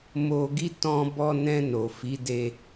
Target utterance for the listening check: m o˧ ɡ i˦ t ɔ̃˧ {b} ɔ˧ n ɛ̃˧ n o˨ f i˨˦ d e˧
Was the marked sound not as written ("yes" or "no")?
no